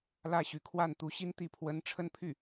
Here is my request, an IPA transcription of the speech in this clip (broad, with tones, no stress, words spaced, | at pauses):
lä˥˩ɕy˧˥ kʰwa˥˩nt̪u˧˥ɕi˥n t̪i˧˥pʰwə˧˥n ʈ͡ʂʰə˥˧npʰy˥˩